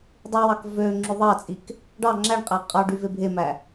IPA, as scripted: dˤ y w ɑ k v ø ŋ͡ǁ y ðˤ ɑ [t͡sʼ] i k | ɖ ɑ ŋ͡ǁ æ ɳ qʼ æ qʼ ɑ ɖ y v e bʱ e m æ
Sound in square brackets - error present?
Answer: no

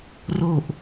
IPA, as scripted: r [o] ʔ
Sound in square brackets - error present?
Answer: no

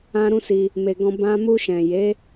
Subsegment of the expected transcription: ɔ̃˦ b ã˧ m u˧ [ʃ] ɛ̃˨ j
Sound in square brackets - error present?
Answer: no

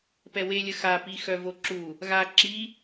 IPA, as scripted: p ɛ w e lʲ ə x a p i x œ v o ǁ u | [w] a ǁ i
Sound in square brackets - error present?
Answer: yes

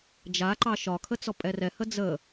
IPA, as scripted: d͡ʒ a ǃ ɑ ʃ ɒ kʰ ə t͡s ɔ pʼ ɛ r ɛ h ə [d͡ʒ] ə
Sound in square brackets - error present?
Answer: yes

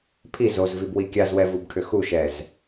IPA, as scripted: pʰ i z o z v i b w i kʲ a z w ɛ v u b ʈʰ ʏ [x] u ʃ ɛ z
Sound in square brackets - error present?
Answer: no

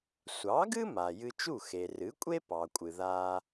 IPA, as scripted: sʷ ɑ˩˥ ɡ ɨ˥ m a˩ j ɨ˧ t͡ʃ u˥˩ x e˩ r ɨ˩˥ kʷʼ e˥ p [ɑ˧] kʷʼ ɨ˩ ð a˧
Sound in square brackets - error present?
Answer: yes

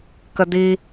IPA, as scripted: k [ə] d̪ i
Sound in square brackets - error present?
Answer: no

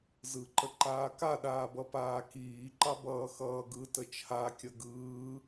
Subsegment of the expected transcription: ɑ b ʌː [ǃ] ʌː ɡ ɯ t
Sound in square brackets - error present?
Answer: yes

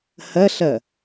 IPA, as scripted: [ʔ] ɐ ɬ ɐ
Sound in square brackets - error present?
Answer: yes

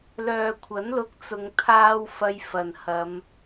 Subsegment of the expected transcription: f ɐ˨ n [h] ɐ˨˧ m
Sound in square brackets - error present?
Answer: no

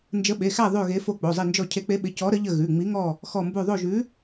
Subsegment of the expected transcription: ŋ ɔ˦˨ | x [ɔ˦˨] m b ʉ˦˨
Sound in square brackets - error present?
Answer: no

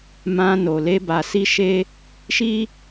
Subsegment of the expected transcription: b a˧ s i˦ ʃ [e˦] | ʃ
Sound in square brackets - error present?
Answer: no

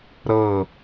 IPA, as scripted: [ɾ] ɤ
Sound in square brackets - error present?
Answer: no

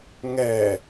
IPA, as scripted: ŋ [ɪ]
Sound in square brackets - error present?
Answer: yes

